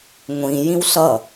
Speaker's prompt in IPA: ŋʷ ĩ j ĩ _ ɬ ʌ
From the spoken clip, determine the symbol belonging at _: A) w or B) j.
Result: A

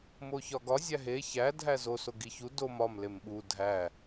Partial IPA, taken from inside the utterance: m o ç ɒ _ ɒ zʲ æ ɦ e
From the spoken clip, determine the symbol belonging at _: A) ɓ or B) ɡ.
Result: B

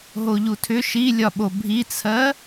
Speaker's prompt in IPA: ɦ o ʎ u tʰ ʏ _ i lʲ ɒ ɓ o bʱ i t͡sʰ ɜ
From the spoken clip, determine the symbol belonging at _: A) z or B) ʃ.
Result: B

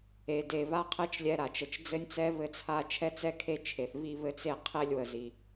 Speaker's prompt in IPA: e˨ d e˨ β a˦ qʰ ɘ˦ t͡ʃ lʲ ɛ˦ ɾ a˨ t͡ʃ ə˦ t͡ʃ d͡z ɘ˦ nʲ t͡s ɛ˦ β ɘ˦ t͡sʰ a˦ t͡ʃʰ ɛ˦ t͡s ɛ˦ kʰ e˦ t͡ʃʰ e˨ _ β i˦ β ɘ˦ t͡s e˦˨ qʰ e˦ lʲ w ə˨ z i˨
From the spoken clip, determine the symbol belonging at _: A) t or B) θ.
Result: B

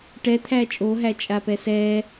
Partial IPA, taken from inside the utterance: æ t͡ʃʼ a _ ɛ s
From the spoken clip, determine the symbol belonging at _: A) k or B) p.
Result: B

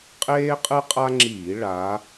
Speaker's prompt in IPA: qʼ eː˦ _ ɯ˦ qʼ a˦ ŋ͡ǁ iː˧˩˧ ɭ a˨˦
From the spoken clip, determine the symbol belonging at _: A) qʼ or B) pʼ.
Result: A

